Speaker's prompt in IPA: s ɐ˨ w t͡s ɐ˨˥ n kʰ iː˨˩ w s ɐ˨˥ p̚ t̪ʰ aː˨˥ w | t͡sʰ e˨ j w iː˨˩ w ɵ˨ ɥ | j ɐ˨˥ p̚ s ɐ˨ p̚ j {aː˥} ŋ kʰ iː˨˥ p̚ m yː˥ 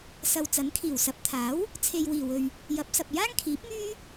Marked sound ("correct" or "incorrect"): correct